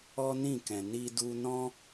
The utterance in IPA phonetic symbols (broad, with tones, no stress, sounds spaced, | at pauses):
ɔ˦ n ĩ˦˨ k ɛ̃˨ n i˧ d u˧ n ɔ̃˦